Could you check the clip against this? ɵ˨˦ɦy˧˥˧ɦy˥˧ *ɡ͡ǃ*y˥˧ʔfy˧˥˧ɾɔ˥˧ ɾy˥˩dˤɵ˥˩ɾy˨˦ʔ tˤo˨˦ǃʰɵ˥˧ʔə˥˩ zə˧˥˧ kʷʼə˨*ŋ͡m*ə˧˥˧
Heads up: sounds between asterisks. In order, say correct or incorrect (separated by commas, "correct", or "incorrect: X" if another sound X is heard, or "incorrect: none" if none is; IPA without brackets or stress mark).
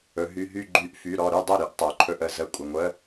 correct, incorrect: ŋʷ